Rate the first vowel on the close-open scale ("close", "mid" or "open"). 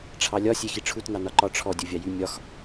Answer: open